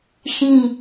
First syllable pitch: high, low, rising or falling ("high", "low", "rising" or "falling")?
falling